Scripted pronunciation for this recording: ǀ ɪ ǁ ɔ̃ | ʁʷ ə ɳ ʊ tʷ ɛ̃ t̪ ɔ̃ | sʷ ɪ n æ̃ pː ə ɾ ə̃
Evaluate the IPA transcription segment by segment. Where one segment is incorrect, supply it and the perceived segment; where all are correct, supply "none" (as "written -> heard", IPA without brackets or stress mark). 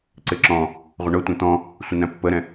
ə̃ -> ɛ̃